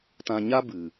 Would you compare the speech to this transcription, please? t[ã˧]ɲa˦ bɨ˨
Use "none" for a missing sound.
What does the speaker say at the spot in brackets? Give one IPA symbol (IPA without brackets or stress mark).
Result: ã˧